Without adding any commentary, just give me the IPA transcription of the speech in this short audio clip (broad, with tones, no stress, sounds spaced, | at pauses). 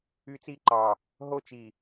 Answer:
y˦ t͡s i˦ ǃ ɑ˨ | ɦ o˦ t͡ʃ i˨